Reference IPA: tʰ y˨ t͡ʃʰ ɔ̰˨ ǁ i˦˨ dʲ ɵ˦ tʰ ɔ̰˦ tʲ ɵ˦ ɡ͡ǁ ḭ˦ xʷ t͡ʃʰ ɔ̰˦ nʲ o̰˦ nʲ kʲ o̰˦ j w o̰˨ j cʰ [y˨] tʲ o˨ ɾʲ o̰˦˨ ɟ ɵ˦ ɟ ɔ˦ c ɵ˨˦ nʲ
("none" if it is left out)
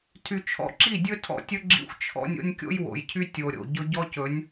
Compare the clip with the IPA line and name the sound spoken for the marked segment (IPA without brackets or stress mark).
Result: y˦